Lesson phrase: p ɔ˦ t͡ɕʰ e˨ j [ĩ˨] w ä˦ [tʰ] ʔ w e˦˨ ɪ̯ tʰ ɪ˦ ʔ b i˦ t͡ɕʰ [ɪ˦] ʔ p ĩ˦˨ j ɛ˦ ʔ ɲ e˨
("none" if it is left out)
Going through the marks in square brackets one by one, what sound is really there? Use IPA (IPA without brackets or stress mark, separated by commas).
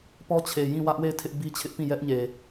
ĩ˦˨, none, ɪ˦